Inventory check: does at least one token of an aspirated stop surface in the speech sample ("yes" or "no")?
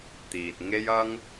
no